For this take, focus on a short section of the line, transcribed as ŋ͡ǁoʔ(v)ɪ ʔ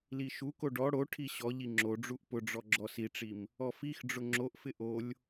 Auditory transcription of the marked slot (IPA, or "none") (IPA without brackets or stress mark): f